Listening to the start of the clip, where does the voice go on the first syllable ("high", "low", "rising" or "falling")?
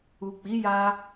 low